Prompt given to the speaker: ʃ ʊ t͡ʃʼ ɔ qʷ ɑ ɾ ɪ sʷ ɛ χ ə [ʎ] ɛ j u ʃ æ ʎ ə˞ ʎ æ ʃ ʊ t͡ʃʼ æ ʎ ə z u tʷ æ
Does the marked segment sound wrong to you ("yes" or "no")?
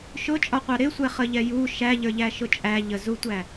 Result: no